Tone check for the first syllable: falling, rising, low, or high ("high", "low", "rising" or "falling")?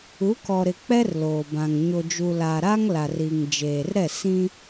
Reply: rising